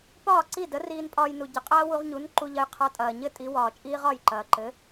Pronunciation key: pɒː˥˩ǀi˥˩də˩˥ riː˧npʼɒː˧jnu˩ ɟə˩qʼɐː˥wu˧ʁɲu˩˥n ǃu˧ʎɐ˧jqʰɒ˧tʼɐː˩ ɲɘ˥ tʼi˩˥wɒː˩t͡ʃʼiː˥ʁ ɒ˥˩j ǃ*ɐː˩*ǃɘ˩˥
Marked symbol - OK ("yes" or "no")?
yes